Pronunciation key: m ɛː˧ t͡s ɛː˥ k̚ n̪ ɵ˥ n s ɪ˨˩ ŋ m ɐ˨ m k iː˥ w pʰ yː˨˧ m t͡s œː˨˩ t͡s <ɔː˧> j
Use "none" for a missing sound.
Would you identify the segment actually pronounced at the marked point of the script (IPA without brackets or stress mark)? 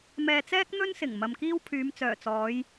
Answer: ɔː˨˧